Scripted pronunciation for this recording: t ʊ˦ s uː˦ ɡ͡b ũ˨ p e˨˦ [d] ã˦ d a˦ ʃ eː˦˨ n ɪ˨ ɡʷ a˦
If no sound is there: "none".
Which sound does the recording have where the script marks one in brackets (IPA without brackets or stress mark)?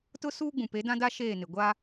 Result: d